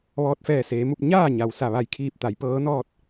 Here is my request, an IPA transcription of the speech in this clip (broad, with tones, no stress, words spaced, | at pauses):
ʋɔː˧t̚fɛː˧˩seː˩˧mu˧p̚ ɲaː˥˨ɲa˩wsa˧˩ ʋa˧˩jkʰiː˧˩p̚t̪a˩˧j pɤː˧˥nɔː˥˨t̚